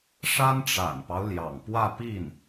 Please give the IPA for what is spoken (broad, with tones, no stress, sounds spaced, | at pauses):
ʂ a˥ n ʈ͡ʂ a̰˨˩ n p ɑ˦ ʊ̯ l j ɑ̰˨˩ ŋ p w ä˥˧ p i˥˩ n